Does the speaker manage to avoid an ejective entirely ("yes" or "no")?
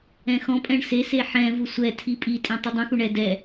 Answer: no